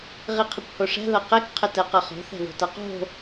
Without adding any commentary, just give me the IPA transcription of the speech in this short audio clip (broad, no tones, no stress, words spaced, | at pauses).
ʁiqʰəkʷhoʂɛ̤ ðʌqɛk qʰətɛqʌχo̤ θɛ̤ðo̤tʌqo̤